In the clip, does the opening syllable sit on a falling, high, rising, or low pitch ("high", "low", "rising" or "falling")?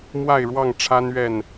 falling